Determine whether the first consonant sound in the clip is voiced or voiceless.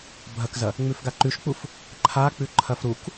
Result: voiced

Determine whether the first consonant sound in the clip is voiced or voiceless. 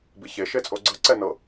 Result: voiced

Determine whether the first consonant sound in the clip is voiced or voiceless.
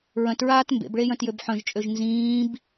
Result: voiced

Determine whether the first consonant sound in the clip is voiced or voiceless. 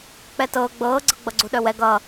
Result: voiceless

